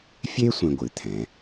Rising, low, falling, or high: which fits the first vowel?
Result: high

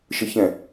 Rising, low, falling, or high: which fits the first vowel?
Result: low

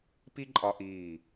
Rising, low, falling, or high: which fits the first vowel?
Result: high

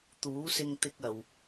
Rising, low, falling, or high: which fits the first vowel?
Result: rising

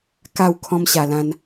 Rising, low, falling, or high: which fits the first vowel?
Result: falling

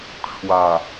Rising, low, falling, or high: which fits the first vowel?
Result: low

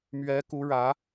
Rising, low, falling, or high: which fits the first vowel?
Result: rising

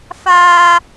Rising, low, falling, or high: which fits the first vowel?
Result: high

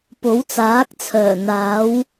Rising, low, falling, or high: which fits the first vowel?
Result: rising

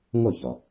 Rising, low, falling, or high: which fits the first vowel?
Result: falling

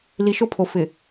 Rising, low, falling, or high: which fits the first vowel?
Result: low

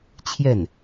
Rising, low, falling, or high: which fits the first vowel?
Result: falling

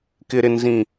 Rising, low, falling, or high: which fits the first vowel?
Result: high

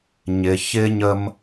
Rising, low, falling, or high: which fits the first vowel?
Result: low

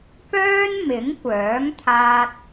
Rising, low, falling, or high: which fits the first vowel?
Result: high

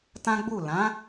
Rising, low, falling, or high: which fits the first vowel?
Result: high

